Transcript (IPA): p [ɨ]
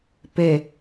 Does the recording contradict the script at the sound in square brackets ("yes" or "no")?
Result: yes